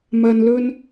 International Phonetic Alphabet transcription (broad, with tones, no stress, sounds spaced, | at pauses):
m ɐ˨ n l ɵ˧ n